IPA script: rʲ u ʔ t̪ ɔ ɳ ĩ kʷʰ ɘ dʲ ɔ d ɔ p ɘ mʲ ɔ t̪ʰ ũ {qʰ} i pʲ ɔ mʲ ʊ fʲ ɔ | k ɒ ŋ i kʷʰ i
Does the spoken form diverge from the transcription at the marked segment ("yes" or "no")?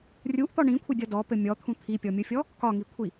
yes